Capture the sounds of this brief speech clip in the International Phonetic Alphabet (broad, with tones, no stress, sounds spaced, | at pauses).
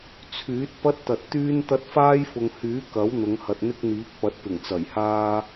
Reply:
t͡sʰ yː˨˥ t̚ p ɐ˥ t̚ t̪ ɐ˨ t̚ t̪ yː˥ n t̪ ɐ˥ t̚ f aː˥ j f ʊ˨ ŋ h yː˨˥ k ɐ˨˥ w n̪ ʊ˨˧ ŋ h ɐ˨ t̚ n̪ ɪ˥ k̚ n̪ iː˨˥ k̚ p ɐ˨˥ t̚ p ɪ˨˩ ŋ t͡s ɐ˨˩ j h aː˥